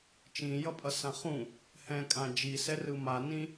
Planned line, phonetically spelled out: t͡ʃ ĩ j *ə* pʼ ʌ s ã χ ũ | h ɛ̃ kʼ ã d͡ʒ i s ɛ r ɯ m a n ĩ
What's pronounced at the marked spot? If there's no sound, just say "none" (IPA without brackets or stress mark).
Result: ʌ